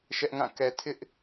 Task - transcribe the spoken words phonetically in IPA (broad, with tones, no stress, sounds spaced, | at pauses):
ʃ ɛ˦ ʔ ŋ ã˦˨ k ɛ˨ tʰ ɪ˦ ʔ